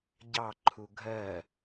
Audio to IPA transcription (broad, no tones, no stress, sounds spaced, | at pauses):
ɟ ɑ ǃʰ u ɡʱ ɜ